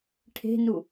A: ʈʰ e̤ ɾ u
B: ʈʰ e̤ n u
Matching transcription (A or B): B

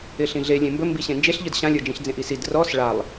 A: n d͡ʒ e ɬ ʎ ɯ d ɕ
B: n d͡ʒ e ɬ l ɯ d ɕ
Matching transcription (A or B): A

